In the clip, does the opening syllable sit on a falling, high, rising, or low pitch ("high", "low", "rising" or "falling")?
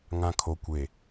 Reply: low